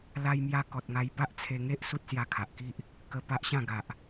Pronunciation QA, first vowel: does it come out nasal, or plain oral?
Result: oral